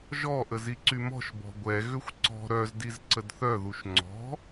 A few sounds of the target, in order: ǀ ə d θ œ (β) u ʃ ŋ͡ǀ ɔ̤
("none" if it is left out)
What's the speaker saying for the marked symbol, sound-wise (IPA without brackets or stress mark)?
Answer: ð